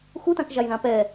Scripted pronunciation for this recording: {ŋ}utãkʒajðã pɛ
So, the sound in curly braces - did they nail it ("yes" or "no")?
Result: no